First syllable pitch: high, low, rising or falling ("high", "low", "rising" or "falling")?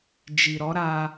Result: low